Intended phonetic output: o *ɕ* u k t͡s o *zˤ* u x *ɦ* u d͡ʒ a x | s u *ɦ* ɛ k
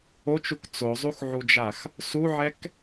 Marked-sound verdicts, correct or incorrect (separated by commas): incorrect, correct, incorrect, incorrect